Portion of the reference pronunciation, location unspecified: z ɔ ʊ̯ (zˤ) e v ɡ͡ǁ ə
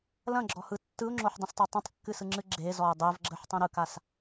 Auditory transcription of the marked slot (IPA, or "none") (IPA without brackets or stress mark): dˤ